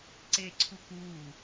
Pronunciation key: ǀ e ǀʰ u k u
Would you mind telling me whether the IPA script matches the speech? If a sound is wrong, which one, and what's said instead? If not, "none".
none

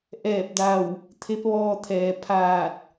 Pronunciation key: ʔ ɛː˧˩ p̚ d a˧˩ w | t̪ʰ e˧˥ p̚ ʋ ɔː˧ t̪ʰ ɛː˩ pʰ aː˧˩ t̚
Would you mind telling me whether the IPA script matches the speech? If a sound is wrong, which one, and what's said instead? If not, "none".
none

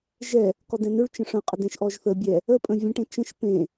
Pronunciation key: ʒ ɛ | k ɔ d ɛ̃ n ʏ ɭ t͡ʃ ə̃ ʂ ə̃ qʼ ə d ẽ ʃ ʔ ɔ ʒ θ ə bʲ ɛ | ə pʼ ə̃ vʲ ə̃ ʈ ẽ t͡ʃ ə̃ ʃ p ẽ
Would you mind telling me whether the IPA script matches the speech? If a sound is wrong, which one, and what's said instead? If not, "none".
none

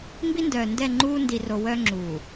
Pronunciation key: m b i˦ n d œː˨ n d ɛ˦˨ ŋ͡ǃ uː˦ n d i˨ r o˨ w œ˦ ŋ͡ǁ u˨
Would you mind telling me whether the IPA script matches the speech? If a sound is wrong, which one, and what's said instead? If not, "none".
none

